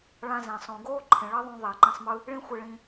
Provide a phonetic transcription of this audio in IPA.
ɭ ã˧ z ẽ˨ sˤ õ˨ ɡ oː˦ ǃʰ ẽ˨ ɭ ʌ˦ ðˤ ũ˧ ðˤ ɛ˨ ǃ ĩ˧ sˤ m ɯ˦ | ɭ ĩ˦ xʷ e˧ ɭ ĩ˧

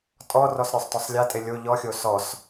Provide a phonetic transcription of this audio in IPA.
tʼ ɔ r ɔ s ɾʲ o sˤ t ɔ sˤ lʲ a tʼ e lʲ o ʎ ɔ xʲ o s ɔ s

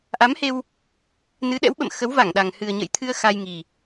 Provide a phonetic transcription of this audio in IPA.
ʔ a˨˦ m h e˧ w | n ɨ˨˦ ɗ ɛ̰˧˥ w ɓ ə̰˧˨ m x ə˨˦ w v a˧˩ ŋ ɗ a˨˩ ŋ h ɨ˨˩ ə̯ ɲ ə̰˧˨ j t̪ʰ ɨ˧ ə̯ x a˧ j ŋ i˨˩

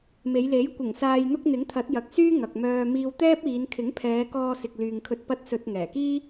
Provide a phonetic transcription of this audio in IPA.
m e˨˧ j l e˨˥ j kʷ ɪ˨˩ ŋ s aː˨ j n̪ ʊ˧ k̚ n̪ ɪ˨˥ ŋ t̪ʰ ɐ˨˥ t̚ j ɐ˨ k̚ s yː˥ ŋ ɐ˨ k̚ m œː˧ m iː˧ w t̪ ɛː˥ p̚ iː˨˧ n kʰ ɪ˨˥ ŋ pʰ ɛː˨˧ k ɔː˧ s ɪ˨ k̚ l yː˨ ŋ kʰ ɵ˧ t̚ p ɐ˧ t̚ s ɵ˨ t̚ ŋ ɛː˨˩ k iː˥

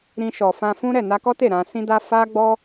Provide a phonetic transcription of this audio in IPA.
ɾ ĩ˧ ʃ ɔ˨ f ã˧ f ũ˦ ɾ ɛ˦˨ n a˧ k ɔ˦ t e˦˨ ɾ ã˧ s ĩ˦ d a˦ f a˦ ɡ͡b ɔ˦

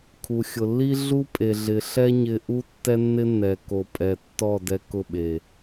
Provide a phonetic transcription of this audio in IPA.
kʰ u˨ xʲ ʊ˨ lː i˦ ɮ u˦ pʼ e˨ ɮ ɪ˨ ɬ ɛ˦ ɲ ɪ˦ ʔ u˦ tː ɛ˦ nː ɪ˦ nː ɛ˨ k o˨ pʼ ɛ˨ tː ɔ˦˨ d ɛ˦ k ʊ˦˨ ɓ e˨

